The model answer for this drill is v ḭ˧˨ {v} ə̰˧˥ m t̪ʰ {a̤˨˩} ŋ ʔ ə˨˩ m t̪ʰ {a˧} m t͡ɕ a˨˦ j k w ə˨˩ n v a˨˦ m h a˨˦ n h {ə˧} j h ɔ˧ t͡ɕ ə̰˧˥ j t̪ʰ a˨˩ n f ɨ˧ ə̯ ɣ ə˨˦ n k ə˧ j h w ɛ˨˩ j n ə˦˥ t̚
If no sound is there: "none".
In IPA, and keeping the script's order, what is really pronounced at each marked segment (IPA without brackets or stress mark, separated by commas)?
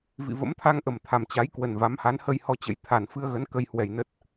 v, a˧, a˨˩, ə˧